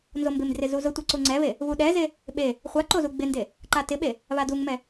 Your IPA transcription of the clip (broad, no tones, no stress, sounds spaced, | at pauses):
n z o m b ɪ m d r ɪ z u z ʊ tʷ e ǀ u ŋ͡ǀ ɛ β e | β u ɗ ɛ z e | ɓ e | χʷ a ǃ o z u ɡ͡b ɪ n d e | ǃ a t ɪ ɓ e | β a d u ŋ m ɛ